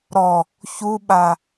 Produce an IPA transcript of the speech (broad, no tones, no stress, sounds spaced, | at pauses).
ɾ ɔ | ç u ɓ a